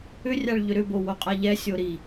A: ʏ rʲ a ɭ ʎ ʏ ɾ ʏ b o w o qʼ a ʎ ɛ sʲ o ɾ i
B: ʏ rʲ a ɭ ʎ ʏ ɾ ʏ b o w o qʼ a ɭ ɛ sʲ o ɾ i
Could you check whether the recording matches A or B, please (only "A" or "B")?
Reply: A